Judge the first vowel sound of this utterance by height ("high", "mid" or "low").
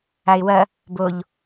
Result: low